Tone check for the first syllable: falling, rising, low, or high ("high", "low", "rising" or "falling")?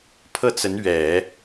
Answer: falling